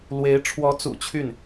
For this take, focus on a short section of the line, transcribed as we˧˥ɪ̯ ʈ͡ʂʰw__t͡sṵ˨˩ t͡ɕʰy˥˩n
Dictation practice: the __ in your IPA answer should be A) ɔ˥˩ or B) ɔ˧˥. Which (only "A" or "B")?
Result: B